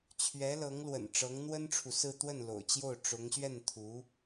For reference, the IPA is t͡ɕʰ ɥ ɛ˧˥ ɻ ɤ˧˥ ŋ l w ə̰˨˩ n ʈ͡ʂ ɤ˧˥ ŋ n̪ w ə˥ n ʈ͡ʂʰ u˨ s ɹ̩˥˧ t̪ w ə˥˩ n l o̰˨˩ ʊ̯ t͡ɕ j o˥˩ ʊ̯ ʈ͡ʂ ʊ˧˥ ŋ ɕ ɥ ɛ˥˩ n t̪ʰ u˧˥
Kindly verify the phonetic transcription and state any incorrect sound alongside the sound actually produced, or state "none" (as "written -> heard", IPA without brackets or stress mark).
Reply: ɻ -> l